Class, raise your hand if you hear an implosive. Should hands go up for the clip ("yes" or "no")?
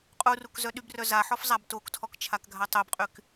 yes